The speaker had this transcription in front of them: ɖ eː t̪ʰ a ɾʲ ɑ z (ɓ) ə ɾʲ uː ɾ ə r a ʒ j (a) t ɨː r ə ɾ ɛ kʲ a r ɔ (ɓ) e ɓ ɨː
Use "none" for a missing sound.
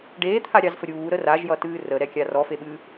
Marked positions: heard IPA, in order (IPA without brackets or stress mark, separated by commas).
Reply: f, ʌ, f